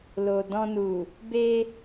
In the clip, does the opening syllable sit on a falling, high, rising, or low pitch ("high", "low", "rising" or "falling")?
low